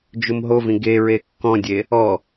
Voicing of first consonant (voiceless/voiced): voiced